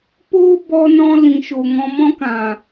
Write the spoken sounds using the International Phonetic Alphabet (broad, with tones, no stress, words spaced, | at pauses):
po˦bɔ˧nɔ̃˧ lĩ˨ʃo˨ŋɔ̃˧ mɔ̃˦kã˨